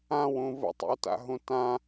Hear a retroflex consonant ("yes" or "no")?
no